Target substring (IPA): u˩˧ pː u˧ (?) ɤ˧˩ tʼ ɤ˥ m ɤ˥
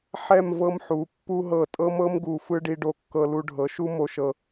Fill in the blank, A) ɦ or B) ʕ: A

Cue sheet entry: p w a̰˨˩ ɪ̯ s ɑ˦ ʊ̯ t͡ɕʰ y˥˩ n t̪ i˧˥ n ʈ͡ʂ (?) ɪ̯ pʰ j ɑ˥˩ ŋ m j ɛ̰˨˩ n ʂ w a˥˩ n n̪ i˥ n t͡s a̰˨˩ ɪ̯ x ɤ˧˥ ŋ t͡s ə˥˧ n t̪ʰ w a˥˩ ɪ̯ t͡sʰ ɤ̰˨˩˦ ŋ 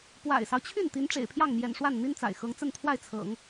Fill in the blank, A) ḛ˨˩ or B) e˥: A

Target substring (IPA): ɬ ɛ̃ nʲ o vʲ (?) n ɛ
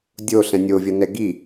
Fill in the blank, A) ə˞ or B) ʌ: B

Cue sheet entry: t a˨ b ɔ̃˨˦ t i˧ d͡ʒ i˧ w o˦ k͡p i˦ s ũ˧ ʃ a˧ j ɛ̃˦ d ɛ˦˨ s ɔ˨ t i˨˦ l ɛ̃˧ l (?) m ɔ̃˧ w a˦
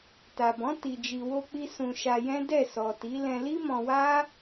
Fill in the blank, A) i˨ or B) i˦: B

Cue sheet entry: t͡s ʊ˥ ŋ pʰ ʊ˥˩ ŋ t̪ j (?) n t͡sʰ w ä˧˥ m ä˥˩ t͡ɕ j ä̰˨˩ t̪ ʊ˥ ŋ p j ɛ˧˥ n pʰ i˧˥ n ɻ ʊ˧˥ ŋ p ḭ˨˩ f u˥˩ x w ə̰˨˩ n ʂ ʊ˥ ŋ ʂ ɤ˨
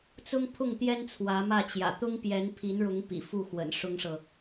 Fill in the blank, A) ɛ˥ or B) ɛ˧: A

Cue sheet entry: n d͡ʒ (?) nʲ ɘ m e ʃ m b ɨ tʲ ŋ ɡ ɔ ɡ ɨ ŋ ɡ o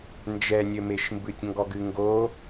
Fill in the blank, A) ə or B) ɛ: B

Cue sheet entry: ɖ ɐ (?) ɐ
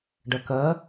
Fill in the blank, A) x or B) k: B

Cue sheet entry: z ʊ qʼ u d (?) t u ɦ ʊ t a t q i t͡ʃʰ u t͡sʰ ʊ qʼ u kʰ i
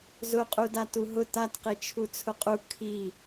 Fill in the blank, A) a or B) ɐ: A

